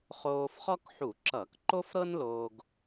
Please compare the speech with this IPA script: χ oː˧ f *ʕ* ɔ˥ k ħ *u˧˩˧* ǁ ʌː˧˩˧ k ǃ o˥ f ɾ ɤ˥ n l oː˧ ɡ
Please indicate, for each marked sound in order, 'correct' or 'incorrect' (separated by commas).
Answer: incorrect, correct